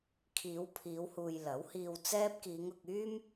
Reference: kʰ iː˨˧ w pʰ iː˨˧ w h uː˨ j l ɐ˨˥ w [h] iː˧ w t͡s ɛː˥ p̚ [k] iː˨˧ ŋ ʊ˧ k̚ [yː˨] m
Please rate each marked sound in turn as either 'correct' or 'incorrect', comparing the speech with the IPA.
correct, correct, incorrect

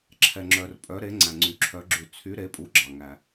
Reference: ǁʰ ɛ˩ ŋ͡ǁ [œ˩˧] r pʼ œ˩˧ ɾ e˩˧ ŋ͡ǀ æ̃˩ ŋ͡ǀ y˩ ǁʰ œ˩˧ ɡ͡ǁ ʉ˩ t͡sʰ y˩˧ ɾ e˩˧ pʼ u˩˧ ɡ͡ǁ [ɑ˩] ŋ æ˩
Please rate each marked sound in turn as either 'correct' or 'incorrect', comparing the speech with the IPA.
incorrect, correct

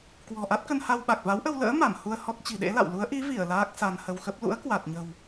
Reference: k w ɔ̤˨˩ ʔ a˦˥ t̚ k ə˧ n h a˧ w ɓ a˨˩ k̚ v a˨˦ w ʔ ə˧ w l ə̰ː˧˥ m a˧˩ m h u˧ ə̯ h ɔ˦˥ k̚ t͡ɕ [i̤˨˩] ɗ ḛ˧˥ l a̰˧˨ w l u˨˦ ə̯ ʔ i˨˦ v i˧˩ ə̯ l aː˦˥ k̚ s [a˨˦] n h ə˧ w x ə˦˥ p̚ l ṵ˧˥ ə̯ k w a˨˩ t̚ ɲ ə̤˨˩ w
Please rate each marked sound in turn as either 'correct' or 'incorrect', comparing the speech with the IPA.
correct, incorrect

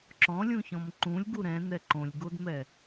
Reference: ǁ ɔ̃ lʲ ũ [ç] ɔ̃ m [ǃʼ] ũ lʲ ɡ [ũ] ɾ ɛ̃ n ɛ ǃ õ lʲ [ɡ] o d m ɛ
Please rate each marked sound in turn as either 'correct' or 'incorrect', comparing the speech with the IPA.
correct, incorrect, incorrect, correct

